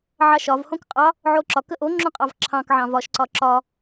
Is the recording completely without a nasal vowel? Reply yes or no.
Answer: no